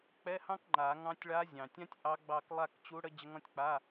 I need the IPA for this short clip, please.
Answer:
k͡p ɛ˧˥˧ h ɑ̃˥ k ŋ͡ǃ a˨˩˦ ŋ ɑ̃˧˥ tʲ ɭ a˧˥ zʲ ɑ̃˩ tʲ ã˥ tʲ ʔ ɑ˧˥ ɡ͡b ɑ˦˨ k lˠ a˦˨ k t͡ɕ u˧˥ ɽ ə˧˥ d͡ʑ ə˧˥ ŋ ɔ̃˧˥ tʲ k͡p a˧˥˧

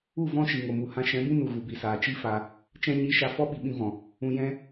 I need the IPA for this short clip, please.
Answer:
u˦˨ v ɔ̃˦ ʃ i˨ ŋ o˨ m u˨ h ã˧ ʃ ɛ̃˨˦ b ĩ˦ n u˨ ɣ u˨ b i˨ s aː˨ t͡ʃ i˦ f a˧ | t͡ʃ ɛ̃˧ ɲ i˨˦ ʃ a˨ f ɔ˦ ɓ i˨ ɓ ĩ˧ v ɔ̃˨ | ũ˧ j ɛ̃˦

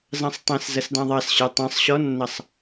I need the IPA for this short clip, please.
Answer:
z ɑ̃ sˤ tˤ ɛ̃ s z ʌ s d ɑ̃ ðˤ ɑ s ɕ ə˞ tˤ ɑ̃ sˤ ɕ ɔ nː ʌ sˤ

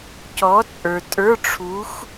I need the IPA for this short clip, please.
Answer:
c ɔ˨˥ t͡sʼ ə˞˨ tʼ ə˞˧˥˧ ʈ͡ʂʰ u˨˥ x

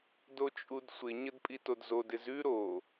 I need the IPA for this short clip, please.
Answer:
d o t͡ʃʼ u d sʷ ɪ ɲ ə d pʼ i t o d z o d ɪ z ʉ ɾ o

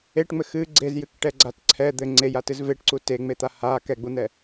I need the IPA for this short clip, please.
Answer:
e ʈ ŋ͡m ɘ x ɨ ɡ͡ǀ e z j ɨ k ʈ ɛ ɡ͡ǀ a t ǀʰ ɛ d̪ ɘ ŋ͡ǀ e j a t ɨ z v e ʈ ǀ u t e ŋ͡m e t̪ a h a k ɛ ɡ͡b u n̪ ɛ

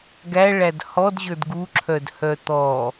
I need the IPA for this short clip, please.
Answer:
ɡ æ ɭ æ d h ɔ d ʑ ə˞ d ɡ u ǁʰ œ d h œ t̪ ɔ

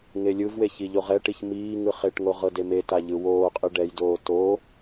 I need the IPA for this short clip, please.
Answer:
ŋ e lʲ ɯ v w e ç i ʎ o ʁ ɛ ʈ i ç m iː ŋ ɯ χ e ʈ ŋ o ʁ ɤ d e m e t a ʎ ɯ w oː qʼ ɯ ɖ ɛ j d oː t o

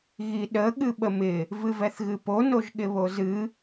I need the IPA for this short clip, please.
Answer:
ɣ i ɗ ə ɠ ɨ ɓ ə m ɪ | v ɨ v ɛ θ ɣ ɨ p o n o ʒ ɠ ɪ β o z ɨ

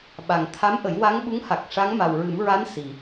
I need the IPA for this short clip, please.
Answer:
ɓ a˨˩ ŋ t̪ʰ a˧˥ m ʔ ə˨˩˦ j w a˧˥ ŋ ɓ u˧˥ ŋ h a˨˩ k̚ ʂ a˧˥ ŋ m a˨˩ w ɹ ɨ˨˩˦ m ɹ a˧˥ n s i˨˩

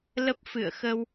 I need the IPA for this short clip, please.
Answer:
l ə˦˥ p̚ f ɨ̰˧˨ ə̯ x ə˧ w

